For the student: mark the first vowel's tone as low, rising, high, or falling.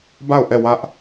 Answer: falling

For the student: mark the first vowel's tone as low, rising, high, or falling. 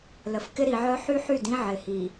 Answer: low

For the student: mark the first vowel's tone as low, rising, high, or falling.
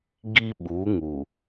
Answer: high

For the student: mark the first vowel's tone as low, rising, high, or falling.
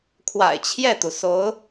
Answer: low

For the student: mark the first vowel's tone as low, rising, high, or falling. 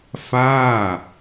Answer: falling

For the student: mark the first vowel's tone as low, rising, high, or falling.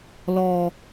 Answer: high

